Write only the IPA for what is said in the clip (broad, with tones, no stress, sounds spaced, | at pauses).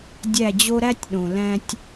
dʲ æ˦˨ d͡ʑ o˦ ɾ æ˦ tʲ ɗ õ˨ l æ̃˦ tʲ